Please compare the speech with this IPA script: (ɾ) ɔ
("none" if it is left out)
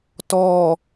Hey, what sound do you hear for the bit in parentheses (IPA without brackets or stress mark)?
t